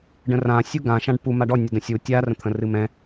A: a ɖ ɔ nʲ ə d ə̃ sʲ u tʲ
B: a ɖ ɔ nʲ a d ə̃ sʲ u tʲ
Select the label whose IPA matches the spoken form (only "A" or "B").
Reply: A